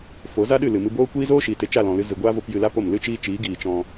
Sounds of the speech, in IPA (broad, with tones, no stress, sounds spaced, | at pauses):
f o˨˦ z a˦ ɗ ɨ˦˨ l ɨ˨ m ɨ˧ b oː˦ kʷ iː˦ z oː˦ ʃ iː˨ t e˦ t͡ʃ a˦˨ l ɔ̃˨ l ɨ˧ z ɨ˨ ɡʷ aː˦ v o˧ p j ɨ˧ l a˦ p o˦˨ m l ɨ˦ t͡ʃ iː˦ t͡ʃ iː˨˦ ɡ iː˨ t͡ʃ ɔ̃˧